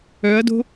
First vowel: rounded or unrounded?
rounded